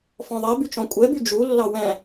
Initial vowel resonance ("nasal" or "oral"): nasal